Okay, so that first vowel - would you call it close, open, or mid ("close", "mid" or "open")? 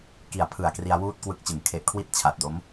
close